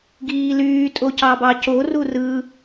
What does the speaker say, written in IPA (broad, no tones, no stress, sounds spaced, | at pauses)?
ɡ iː l yː tʼ o c ɑ b ɑ c o r u r ɯ